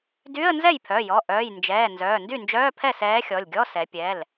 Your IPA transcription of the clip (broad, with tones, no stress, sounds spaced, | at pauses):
d y˧˥˧ ə̯ n z ɛ˥˩ j pʰ œ˩˧˩ j ɔ˩˧˩ ʔ œː˩˧˩ j n d͡ʒ ɛː˩˧˩ n z œː˩˧˩ n d y˥˩ n d͡ʒ œː˧˥˧ pʰ ɛ˥˩ s ɛː˧˥ xʲ ɔ˩˧˩ lʲ ɡʲ ɔ˧˥˧ s ɛ˩˧ pʲ ɛ˩˧˩ l